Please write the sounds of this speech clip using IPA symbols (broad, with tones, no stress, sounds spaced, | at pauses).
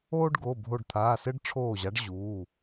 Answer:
oː˦ ɖ ɡ o˩˧˩ bʱ o˧˩ ɖ t̪ʰ aː˩˧˩ s ɘ˦ ɖ ʈ͡ʂʰ oː˧˩ ʑ a˨˦ ɖ ʑ uː˩˧˩